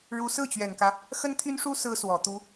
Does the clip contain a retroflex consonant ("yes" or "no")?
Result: yes